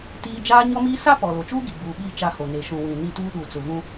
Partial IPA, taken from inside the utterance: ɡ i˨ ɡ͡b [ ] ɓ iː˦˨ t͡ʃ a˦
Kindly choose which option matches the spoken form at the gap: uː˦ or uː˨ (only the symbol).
uː˨